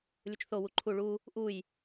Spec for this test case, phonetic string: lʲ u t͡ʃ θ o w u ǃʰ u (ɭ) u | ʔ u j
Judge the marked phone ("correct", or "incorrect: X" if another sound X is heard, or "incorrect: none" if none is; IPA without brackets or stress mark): correct